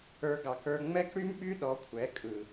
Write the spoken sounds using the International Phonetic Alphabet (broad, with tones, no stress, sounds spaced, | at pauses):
ə˞˦ ɡ ɑ˧ k ə˞˧ ŋ͡m ɛ˦ k ɽ y˦ m ɓ y˦ ɗ ɔ˨˦ kʷʰ ɛ˨˦ kʼ ɯ˨